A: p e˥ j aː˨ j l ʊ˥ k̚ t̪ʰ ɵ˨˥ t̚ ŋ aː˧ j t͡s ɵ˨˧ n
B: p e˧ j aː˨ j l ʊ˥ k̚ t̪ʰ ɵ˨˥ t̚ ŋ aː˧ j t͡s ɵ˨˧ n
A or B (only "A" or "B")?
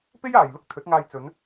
A